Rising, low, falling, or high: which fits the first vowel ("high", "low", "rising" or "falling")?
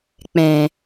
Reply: low